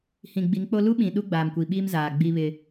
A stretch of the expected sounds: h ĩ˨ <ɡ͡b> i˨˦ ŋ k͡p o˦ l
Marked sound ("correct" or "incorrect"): correct